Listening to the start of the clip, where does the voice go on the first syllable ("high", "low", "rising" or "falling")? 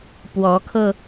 rising